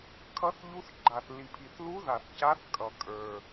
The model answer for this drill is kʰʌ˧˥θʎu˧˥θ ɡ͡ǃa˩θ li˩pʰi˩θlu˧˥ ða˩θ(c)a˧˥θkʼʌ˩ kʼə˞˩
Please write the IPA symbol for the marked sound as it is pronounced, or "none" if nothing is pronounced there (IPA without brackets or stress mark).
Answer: c